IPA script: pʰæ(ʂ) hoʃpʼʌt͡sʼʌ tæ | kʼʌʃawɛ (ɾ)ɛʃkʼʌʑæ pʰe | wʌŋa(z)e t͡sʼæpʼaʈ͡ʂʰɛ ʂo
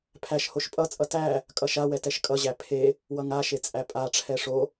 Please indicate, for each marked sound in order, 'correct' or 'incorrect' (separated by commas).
incorrect, incorrect, incorrect